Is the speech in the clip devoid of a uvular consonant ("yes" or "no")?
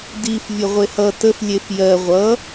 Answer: no